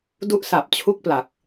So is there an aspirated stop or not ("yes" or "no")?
yes